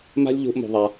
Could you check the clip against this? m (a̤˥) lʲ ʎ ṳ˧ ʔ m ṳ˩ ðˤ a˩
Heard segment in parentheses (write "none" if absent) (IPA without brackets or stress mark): a̤˥